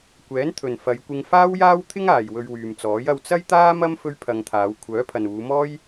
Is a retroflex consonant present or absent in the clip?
absent